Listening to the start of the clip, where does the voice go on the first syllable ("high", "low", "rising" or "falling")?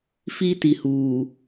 high